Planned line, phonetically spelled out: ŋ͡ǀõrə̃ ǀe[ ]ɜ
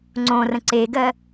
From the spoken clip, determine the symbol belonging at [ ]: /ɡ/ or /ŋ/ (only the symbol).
ɡ